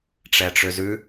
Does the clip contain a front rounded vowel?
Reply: yes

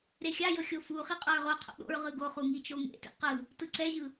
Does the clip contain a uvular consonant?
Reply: yes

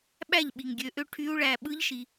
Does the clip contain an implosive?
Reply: yes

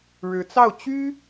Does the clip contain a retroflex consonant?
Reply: yes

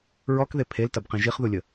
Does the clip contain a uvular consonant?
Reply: yes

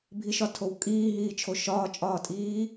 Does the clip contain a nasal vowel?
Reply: no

